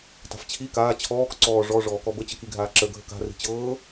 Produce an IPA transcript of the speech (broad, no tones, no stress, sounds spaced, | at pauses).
t a̤ f t͡ɕʰ i k aː t͡ɕʰ ɔː k ǀ ɔː ʐ ɔ ʐ ɔː k ɔ b ə t͡ɕ ə k i ɡʱ aː ǁ ə ɡʱ ə k a̤ r i̤ t͡ɕ ɤː